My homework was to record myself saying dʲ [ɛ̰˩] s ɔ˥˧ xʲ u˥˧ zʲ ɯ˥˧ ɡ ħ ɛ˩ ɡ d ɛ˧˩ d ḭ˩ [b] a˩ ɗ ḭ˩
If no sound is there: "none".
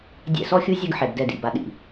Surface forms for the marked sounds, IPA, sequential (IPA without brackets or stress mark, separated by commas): ɛ̰˧˩, b